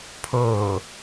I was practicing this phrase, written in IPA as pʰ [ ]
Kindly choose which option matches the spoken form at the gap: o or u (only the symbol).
o